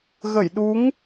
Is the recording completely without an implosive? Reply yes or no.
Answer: no